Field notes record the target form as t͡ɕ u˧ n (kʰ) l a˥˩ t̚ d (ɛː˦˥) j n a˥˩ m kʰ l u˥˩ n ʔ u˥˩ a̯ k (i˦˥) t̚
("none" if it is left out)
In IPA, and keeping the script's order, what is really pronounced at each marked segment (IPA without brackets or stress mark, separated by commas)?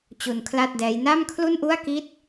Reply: kʰ, ɛː˦˥, i˦˥